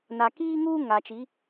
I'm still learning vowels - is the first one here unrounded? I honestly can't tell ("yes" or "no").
yes